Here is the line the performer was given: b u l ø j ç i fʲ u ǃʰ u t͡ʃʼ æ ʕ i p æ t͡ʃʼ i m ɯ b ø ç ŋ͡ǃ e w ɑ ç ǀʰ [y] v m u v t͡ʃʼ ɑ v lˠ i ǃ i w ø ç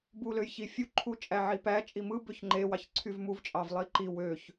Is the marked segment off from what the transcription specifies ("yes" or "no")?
no